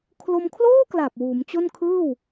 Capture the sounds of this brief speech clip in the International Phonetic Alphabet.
kʰ l o˧ m kʰ l oː˥˩ k l a˨˩ p̚ w uː˩˦ m t͡ɕ o˥˩ n kʰ ɯː˥˩ w

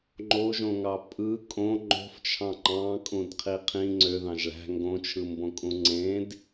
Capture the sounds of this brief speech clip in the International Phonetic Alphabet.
ŋ͡ǃ o ʒ õ ŋ ɑ pʼ ɯ kʼ õ ŋ͡ǃ o̤ f t͡ʃʰ ɑ̃ ŋ͡ǃ ɑ̃ kʼ ũ d qʰ i qʰ ĩ ŋ͡ǀ ø ð ɑ̃ ʒ ɭ æ̤ ŋ ɡ õ t͡ʃʰ ɯ m b õ kʼ ũ ŋ͡ǀ ẽ d

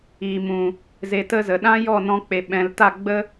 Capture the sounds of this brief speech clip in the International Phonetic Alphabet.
iː˨ m ũ˨ | z e˧ t ə˦ z ə˨ ɗ ã˦ j ɔ˦˨ n ɔ̃˧ k͡p e˨ ɓ ɛ̃˨ l t a˦˨ ɡ͡b ə˦

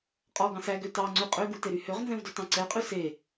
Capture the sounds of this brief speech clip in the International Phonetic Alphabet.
qʼ ɔ ɡ ɑ̃ s æ ɡ ø t ɑ ŋ͡ǀ ʉ qʼ ø ɡ u t e ɾ y h ø ʁ n z ɛ̃ v d ø t ɑ̃ ǀ ɛ qʼ ʉ s e

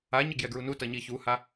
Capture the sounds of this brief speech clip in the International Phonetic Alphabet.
a ɲ ə ɡ j ɛ ɡ ɹ u n u t ʌ ɲ i ç u h a

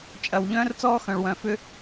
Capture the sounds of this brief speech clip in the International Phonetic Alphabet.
t͡ʃʼ ɐ˨ w ʎ œ̃ː˦ r t͡s ɔː˦ x œ̃˨ ɭ w œ̃˨ f ʏ˧

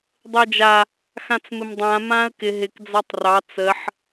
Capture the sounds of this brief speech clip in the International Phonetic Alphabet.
dˤ əː d͡ʒ a | x ã t͡s m ɪ m dˤ ã m ãː ə̯ k ɪ ɦ ɪ k d͡z ɑ tˤ r ɑ t͡s ə ħ

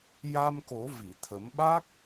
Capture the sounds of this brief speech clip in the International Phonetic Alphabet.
j a˧ m k o˨˩˦ v i˨˩˨ t̪ʰ ə˨˩˦ m ɓ a˦˥ k̚

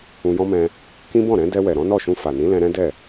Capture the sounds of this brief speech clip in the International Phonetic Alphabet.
ũ˧ j ɔ̃˦ m ɛ̃˧ | k ĩ˦ b ɔ̃˦˨ ɾ ɛ̃˨˦ d ɛ˧ w ɛ˨ ɾ ɔ̃˨˦ n ɔ˦˨ ʃ ũ˧ f a˨ n ĩ˨˦ l ɛ̃˧ ɾ ɛ̃˦ d ɛ˦˨

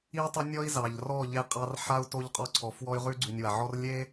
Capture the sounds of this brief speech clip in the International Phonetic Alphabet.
i˦ u̯ tˤ ə˦ nʲ ɔ˦ i̯ z ɑ˨ ʎ r ɔ˦˨ ʎ e˦ qʼ ɑ˦ r ħ a˦ u̯ t o˦ ʎ qʼ ɔ˦ ǀʰ ɔ˨ f w ɔ˦ y̯ ʁ ʉ˦ ɡ͡ǀ ʉ˨ nʲ w a˨ ʕ ɔ˦ r lʲ e˦

